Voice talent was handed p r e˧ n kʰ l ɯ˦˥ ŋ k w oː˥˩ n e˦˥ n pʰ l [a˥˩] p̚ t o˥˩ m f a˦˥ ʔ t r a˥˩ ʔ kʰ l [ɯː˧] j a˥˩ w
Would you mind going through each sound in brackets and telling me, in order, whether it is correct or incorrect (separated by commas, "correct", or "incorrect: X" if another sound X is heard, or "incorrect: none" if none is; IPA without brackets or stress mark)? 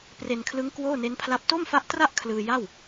incorrect: a˦˥, correct